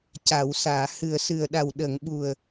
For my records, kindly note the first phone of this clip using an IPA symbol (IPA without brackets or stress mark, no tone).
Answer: c